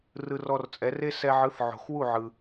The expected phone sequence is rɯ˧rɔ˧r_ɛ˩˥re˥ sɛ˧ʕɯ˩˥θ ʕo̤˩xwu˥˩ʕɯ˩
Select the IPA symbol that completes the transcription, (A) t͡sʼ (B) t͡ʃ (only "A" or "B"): A